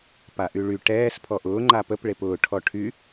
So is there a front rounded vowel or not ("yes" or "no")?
yes